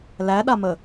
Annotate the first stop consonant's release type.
implosive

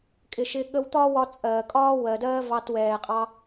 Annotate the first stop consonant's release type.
ejective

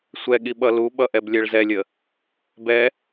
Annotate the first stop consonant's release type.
implosive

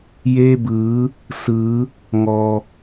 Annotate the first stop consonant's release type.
plain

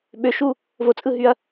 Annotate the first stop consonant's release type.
implosive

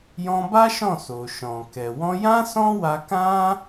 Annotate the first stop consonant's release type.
plain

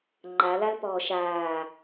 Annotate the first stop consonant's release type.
click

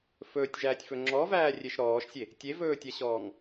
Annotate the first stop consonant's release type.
plain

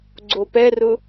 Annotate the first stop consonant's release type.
click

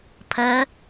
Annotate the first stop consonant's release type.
aspirated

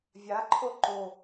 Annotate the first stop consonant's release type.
click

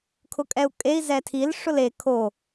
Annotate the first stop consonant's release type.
aspirated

